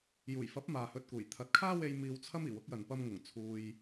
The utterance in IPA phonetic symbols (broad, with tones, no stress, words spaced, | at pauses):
juː˨˩jfɐ˨˥p̚ maː˨hɵ˧t̚kuː˨˩j t̪ʰɐ˨˥t̚kʰaː˥we˧j miː˧wt͡sʰɐ˥m iː˨˩wʊ˨˥k̚jɐ˨n pɐ˧mŋʊ˨˩ŋ t͡sʰuː˧j